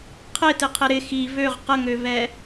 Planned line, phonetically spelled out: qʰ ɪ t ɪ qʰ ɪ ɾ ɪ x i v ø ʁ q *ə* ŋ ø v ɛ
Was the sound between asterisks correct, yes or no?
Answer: yes